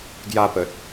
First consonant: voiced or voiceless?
voiced